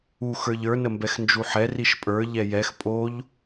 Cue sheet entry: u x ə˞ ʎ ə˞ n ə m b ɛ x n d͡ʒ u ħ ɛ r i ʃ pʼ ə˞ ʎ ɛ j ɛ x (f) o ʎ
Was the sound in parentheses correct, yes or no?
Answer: no